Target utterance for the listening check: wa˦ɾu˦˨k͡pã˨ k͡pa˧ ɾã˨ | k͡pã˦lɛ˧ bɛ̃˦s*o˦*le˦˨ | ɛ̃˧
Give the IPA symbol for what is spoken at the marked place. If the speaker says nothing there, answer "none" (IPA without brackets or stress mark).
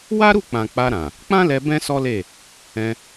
ɔ˦